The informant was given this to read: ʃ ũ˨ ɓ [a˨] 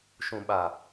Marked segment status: correct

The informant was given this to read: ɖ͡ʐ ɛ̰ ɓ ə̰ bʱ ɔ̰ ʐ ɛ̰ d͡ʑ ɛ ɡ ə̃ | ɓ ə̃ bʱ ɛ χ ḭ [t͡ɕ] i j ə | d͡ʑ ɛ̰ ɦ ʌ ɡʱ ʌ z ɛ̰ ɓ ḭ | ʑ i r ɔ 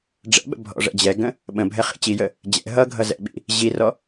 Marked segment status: correct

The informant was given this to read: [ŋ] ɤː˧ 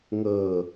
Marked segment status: correct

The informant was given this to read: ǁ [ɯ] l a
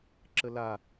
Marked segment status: incorrect: ə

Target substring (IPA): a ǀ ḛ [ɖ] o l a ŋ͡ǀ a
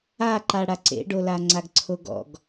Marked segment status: correct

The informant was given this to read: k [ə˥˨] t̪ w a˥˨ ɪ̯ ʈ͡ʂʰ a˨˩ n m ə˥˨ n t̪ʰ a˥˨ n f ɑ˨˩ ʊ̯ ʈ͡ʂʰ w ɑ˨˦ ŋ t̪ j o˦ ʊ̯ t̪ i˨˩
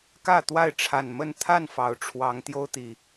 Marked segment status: incorrect: ä˥˨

